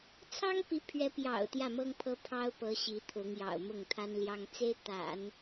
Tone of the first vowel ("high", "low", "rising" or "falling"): high